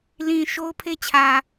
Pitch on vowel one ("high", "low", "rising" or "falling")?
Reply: low